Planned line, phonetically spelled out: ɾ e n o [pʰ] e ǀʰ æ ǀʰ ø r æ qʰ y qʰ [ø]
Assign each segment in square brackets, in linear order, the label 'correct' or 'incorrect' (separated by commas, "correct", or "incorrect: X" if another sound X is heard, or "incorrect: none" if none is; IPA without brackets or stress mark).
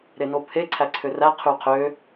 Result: correct, correct